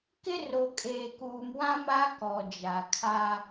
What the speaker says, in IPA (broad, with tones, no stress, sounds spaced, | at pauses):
k ɪ˦ r o˨ kʼ eː˨ k uː˨ m w ã˦ m a˦ k ɔ˨ d͡ʒ a˨ kʰ a˦